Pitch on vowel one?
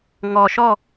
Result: low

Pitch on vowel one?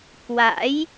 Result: rising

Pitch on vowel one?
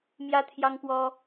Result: high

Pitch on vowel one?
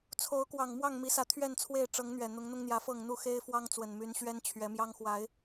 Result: rising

